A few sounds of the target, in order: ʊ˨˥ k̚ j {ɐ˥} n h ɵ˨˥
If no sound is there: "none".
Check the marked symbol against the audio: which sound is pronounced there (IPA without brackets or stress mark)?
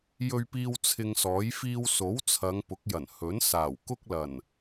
ɐ˨˩